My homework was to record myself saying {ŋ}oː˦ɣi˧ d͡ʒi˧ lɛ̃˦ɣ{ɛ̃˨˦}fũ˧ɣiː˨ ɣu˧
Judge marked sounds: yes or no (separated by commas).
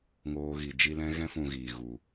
yes, no